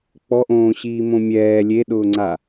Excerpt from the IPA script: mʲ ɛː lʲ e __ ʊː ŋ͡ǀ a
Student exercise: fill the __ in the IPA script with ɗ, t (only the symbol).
ɗ